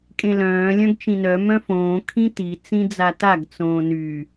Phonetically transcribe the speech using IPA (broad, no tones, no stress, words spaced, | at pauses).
kʼẽlœ̃ː lʲœ̃ɡt͡ʃĩnœ mœ̃fõː kʰĩti t͡sĩd͡zataɡ t͡sõːny